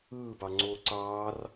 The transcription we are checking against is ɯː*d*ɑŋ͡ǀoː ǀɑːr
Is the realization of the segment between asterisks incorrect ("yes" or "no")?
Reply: yes